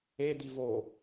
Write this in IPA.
e d̪ i v o

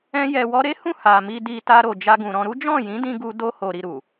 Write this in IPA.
ɛ̃˦ j ɛ˧ w ɔ˦ ɾ e˦ h ũ˦˨ h a˨ m i˧ d i˧ t a˧ ɾ o˨ d͡ʒ a˧ ɡ ũ˨ ɾ ɔ̃˧ ɾ u˦ d͡ʒ ɔ̃˦˨ j ĩ˨˦ d ĩ˧ ɡ u˧ d o˧ h o˨ ɾ i˨ ɾ u˨

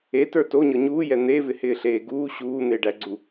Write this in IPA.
e t ə˞ t o ɲ ɤ ɲ uː j ɛ n̪ e v ɪ h ɪː ɬ eː ɡ uː ɕ uː n̪ e ɖ æ ɡ͡ǀ u

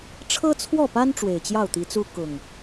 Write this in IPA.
ʈ͡ʂʰ ɤ˦ t͡sʰ w ɔ˥˨ p a˦ n ʈ͡ʂ w e˨˩ ɪ̯ t͡ɕ j ɑ˥˨ ʊ̯ t̪ i˨˦ t͡s u˦ k ʊ˨˩ ŋ

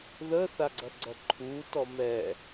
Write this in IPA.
ð ə θ a ɡ͡ǀ ɐ ɡ͡ǀ ɐ ǃʰ u t ɔ m ɛ

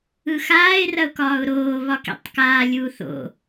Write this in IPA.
ɯ x aː ɪ̯ r ɐ ʊ̯ k ɒː ʊ̯ ɾ oː β ɒ k ḭ tˤ k aː lʲ uː θ o̰

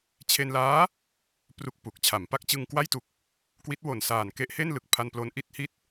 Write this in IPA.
t͡ɕʰ e˧ n l aː˦˥ | p r u˥˩ k̚ p u˨˩ k̚ t͡ɕʰ a˩˦ m p a˦˥ k̚ t͡ɕ ɯ˧ ŋ k w a˥˩ j t u˨˩ k̚ | k w i˦˥ t̚ w o˨˩ n s aː˨˩ n k e˦˥ ʔ h e˥˩ n l ɯ˨˩ k̚ pʰ a˧ n p l o˧ n ʔ i˥˩ t̚ h i˦˥ t̚

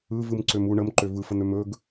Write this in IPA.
ɯ v ɯ m ǀ ø m u ɳ ə m ǃ ø v ɯ f ə n̪ ø m ɵ ɡ

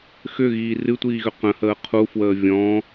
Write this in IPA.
x ʏ ɣ iː r ɨ tʷ iː ɣ ʏ q ə̃ h əː qʰ u f w əː vʲ ɔ̃

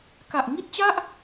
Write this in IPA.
k a˨˩ ʔ ŋ i˥˩ t̚ t͡ɕ a˥˩ ʔ

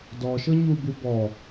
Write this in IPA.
d ɔ ʃ ɤ ɲ u b u b ɔ

